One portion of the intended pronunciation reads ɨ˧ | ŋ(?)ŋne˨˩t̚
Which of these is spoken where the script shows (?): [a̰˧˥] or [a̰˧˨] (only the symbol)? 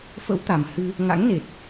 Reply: a̰˧˥